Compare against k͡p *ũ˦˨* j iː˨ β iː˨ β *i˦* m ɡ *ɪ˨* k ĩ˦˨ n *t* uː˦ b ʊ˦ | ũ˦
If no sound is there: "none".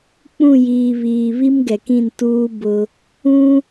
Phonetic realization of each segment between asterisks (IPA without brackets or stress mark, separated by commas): ũ˦˨, i˦, ɛ˨, t